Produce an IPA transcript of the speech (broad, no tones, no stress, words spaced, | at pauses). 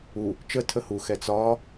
u | t͡ʃə tʰəhuxɛ t͡sɒ